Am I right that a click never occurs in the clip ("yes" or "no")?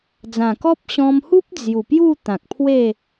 yes